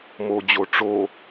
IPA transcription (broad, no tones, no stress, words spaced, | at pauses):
mod͡ʑo ʈ͡ʂo